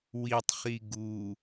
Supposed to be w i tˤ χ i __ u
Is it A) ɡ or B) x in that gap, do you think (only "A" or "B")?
A